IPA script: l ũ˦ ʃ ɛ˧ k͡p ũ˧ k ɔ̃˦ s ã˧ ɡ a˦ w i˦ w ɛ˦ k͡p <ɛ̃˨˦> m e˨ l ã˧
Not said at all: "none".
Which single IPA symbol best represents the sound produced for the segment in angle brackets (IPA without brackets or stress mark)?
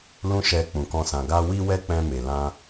ɛ̃˧